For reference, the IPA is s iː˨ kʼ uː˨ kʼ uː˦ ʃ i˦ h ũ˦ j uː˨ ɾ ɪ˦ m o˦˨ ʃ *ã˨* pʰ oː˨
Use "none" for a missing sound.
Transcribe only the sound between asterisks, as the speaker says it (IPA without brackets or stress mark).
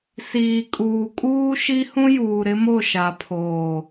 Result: a˨